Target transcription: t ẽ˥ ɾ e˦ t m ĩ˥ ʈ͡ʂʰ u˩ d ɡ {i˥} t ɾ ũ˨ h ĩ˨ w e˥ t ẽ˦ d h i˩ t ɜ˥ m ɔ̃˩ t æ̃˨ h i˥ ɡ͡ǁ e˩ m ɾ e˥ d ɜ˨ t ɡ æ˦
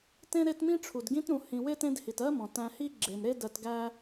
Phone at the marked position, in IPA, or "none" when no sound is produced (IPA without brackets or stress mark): ĩ˥